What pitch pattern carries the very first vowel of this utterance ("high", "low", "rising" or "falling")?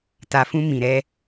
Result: low